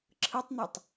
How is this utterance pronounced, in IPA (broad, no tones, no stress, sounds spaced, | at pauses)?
ǁʰ ɯ tˤ n̪ a tˤ